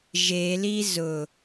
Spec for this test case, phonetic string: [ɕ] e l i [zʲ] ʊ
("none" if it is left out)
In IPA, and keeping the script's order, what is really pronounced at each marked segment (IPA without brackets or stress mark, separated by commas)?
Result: ʒ, z